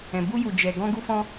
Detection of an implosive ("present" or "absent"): absent